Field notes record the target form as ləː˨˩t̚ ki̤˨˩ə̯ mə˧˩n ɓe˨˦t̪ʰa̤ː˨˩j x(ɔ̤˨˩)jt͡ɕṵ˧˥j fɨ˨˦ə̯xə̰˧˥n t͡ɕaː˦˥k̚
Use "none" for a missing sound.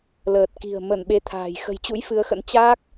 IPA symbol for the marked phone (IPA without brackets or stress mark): ə̤˨˩